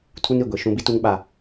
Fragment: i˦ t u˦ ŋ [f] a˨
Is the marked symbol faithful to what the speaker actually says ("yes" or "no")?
no